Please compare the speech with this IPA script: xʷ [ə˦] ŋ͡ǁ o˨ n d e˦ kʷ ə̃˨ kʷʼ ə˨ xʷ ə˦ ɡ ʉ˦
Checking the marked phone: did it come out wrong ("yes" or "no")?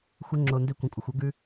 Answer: no